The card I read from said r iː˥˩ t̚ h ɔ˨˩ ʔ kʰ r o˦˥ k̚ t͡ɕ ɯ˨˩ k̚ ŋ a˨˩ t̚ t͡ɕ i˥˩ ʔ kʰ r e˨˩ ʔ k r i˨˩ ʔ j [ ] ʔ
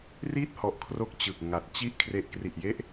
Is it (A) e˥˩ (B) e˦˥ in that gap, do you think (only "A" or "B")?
B